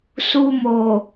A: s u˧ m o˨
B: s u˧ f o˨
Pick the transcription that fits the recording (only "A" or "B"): A